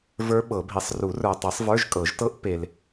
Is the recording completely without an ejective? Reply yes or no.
no